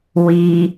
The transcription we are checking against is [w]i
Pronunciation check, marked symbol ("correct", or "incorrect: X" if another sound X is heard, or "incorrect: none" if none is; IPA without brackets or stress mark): correct